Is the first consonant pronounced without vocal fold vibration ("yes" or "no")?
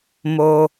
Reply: no